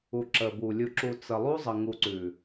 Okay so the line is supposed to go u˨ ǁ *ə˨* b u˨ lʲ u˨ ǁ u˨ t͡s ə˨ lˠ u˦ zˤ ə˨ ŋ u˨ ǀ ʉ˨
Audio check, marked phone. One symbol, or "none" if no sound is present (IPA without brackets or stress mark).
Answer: ə˨